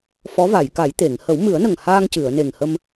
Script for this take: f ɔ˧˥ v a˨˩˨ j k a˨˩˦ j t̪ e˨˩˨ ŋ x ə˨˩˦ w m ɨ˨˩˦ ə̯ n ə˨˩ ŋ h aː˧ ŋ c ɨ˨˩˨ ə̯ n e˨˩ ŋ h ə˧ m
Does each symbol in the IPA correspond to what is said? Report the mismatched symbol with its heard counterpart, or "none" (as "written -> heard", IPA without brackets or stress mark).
x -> h